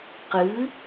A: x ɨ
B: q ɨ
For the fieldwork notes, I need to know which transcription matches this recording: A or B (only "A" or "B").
B